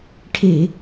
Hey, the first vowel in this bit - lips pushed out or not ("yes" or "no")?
no